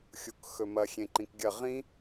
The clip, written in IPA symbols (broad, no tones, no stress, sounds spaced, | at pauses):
xʲ u k x ɵ m ɐ xʲ ẽ ǃ ĩ k ɡʲ ɐ ʁ ĩ